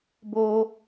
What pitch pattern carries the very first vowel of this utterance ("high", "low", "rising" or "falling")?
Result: high